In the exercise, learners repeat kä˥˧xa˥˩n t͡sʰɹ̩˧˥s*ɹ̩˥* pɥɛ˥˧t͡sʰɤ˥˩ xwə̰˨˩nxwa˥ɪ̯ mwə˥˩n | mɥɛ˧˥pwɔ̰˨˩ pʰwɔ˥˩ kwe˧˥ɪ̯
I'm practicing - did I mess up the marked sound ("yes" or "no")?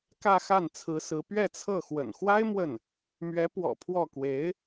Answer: yes